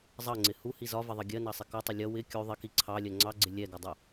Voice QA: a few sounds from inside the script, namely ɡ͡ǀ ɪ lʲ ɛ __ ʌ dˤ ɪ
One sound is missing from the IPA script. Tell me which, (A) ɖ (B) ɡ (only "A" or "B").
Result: B